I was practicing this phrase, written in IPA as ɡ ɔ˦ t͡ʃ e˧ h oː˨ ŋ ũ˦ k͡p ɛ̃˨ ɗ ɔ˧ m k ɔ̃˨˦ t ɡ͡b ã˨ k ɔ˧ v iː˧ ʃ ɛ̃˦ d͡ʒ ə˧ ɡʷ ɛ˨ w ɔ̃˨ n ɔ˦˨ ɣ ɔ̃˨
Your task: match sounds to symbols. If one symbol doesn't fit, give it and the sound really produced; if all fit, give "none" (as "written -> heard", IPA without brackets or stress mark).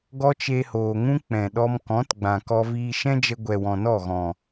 none